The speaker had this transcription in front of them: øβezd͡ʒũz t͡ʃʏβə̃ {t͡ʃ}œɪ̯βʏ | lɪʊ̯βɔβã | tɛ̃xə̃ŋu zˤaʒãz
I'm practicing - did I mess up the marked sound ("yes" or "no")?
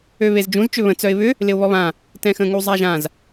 yes